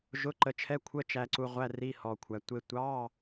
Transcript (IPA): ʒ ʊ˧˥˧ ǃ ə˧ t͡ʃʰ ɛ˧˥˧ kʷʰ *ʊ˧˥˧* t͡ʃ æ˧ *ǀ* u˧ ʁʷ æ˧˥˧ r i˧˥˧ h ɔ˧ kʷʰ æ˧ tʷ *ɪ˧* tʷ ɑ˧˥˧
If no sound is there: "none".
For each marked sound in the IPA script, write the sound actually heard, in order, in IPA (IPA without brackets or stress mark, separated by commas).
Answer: ə˧˥˧, ǀ, ɪ˧